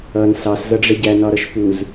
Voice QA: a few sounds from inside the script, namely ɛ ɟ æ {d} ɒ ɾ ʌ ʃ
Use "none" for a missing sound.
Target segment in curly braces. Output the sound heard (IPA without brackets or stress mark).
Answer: n